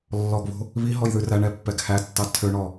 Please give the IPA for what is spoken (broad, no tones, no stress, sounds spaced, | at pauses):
lː ɔ ɡ β o̤ | β i ɦ ɔ j ð ʉ r æ ɳ ɛ pː ɛ ɡ h æ tː ɑ tʰ ø ɳ ɔ